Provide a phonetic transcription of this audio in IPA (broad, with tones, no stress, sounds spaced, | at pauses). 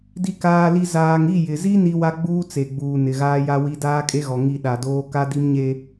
d i˨ k aː˨ l i˨ z aː˨ ŋ i˦˨ j ɪ˨ z i˦ n i˦ w a˦ ɡ͡b uː˦ t͡s e˨ ɡ͡b uː˨ n ɪ˨ ɣ aː˦ j a˦ w i˦ d aː˦ kʼ e˦ ɣ ɔ˨ ŋ i˦˨ ɗ a˨ d oː˦ k a˦ d i˦ m ɲ e˦